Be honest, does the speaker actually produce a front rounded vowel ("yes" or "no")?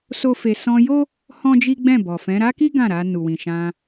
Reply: no